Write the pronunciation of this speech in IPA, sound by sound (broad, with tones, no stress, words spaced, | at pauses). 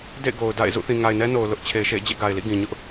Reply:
dḛ˦˨ɪ̯ɡo˨ʊ̯ da̰˦˨ɪ̯zṵ˦˨ θĩ˨ŋa˨ɪ̯nɛ˦no˨ʊ̯ lʊ˦ʔt͡ɕʰe˨ɪ̯ʃḛ˦˨ɪ̯ d͡ʑɛ̰˦˨ɡa˨ɪ̯lḭ˦˨ ɡĩ˨ɲʊ˦ʔ